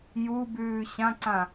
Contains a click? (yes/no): yes